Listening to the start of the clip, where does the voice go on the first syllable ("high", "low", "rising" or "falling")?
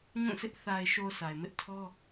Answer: falling